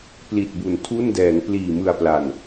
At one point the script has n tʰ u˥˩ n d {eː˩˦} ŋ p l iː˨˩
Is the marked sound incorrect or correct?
incorrect